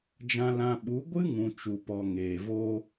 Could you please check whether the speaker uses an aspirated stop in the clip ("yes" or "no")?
no